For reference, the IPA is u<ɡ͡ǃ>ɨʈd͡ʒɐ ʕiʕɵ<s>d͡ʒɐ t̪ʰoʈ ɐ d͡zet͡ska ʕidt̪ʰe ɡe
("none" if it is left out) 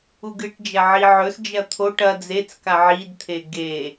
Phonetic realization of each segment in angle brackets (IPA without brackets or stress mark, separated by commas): ɡ, s